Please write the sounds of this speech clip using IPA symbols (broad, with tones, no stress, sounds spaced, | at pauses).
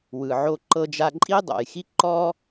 w ɯ˩ ʕ o˧ ǃ ɤ˧ d͡ʒ a˧ ǃʼ i˥ dˤ o̰˩ j x i˥ ǃ ɔ˥